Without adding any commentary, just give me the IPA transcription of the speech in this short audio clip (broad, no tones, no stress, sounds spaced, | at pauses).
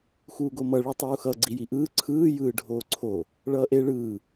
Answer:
x uː ɡ o m ʌ ɭ i tˤ uː x ʌ ɡ͡ǀ i j i ʔ ɯː ǀʰ ɯː j ɯː ɖʱ oː ǀʰ o | ɭ ʌː ʔ e ɭ ɯː